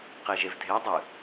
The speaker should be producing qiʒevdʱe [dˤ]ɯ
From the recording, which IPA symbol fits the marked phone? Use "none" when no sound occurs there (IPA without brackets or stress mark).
dˤ